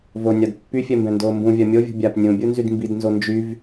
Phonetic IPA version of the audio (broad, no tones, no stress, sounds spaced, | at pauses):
v o nʲ a d pː y fʲ ɛ m b ɛ̃ n d oː m b ũ vʲ a mʲ o vʲ ṳ bʲ a p nʲ ũ bʲ u n z y d m b i d n z o n d͡ʒ y v